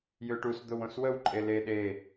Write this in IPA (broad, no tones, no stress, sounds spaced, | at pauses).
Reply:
j ø ʈ u s d̪ o w õ s w ə w ǃʼ e l e ɗ e